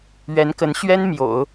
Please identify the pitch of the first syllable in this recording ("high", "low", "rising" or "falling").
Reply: rising